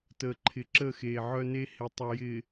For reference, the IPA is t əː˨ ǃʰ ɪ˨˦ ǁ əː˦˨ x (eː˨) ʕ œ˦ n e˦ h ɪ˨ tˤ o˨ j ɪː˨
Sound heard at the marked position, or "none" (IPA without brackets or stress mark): eː˨